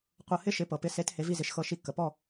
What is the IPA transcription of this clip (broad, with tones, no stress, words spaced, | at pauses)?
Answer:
qʷɤ˧hɪ˥ ʃɪ˩˥pɤ˩ pɪ˩˥se˩˥t he˩˥vi˥˩zɪ˩˥ʃxɤ˧ ʃi˧kːə˩pɔ˥˩